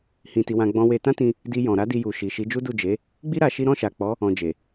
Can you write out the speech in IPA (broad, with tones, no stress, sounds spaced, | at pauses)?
h ĩ˧ t i˧ w ã˧ ɡ͡b ɔ̃˧ w e˧ t ã˦ t ĩ˧ | d i˧ j ɔ̃˨ ɾ a˧ d i˧ j u˨ ʃ i˨ ʃ i˨˦ d͡ʒ u˦ d u˦˨ d͡ʒ e˨˦ | ɡ͡b i˦ ɾ a˧ ʃ i˦ ɾ ɔ̃˦˨ ʃ a˨ k͡p ɔ˨˦ | ɔ̃˧ d͡ʒ e˨